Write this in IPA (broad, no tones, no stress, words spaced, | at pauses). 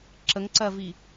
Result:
ǁəŋǀɜvi